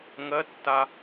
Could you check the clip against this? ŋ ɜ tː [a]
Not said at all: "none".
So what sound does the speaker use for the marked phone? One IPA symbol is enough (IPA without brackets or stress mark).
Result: a